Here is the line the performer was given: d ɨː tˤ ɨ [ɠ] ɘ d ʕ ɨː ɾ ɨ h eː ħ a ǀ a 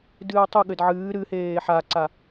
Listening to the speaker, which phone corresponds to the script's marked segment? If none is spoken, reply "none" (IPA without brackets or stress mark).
ɠ